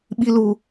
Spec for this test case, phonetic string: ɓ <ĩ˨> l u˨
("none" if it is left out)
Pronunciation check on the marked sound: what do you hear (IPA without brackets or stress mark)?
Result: i˨